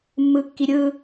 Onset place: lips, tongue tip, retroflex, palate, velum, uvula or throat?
lips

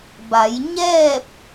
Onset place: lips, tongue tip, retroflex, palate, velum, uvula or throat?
lips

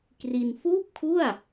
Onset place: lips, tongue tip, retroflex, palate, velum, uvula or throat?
velum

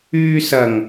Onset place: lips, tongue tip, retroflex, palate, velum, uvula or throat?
tongue tip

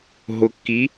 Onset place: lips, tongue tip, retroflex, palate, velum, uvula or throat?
throat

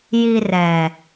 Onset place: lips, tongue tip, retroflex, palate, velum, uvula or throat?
palate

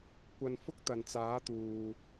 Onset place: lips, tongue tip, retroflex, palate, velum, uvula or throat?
velum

